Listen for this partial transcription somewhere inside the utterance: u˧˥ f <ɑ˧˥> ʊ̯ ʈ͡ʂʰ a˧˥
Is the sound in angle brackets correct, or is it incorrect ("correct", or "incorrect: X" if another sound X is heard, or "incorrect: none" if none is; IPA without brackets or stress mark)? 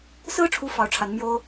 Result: correct